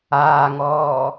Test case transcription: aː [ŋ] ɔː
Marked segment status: correct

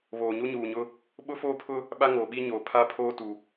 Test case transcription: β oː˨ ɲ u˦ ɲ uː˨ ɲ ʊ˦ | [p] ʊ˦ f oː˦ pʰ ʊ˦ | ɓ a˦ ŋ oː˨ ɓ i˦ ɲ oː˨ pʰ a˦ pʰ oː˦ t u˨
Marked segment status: incorrect: ɓ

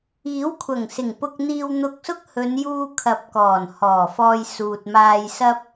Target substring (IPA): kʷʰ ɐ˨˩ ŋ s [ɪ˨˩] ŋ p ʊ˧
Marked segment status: correct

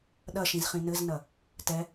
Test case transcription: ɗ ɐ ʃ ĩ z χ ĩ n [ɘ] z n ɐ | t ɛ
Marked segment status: correct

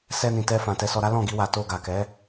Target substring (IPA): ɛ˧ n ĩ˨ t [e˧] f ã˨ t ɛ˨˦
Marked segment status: incorrect: ɛ˧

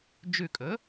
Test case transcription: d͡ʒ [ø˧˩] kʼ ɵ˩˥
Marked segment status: incorrect: ʉ˧˩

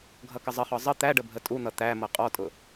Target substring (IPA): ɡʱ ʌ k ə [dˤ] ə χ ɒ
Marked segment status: incorrect: zˤ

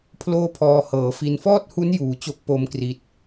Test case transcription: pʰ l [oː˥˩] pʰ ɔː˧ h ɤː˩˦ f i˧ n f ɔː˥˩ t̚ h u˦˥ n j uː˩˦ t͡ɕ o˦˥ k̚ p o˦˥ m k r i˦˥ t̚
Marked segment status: correct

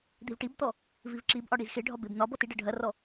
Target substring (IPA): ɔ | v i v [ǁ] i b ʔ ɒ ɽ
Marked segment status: correct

